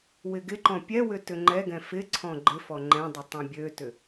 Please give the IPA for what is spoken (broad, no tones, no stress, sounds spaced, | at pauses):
w ɪ ɡ ɪ ǃ ɔ̃ pʲ ɛ w ʏ t ʏ ŋ͡ǃ ɛ ɡ ɛ̃ f ɪ ǀʰ ɔ̃ ɡ͡ǃ ɪ f ɔ ŋ͡ǃ ɛ̃ dˤ ɪ tˤ ɛ̃ bʲ ø t ʏ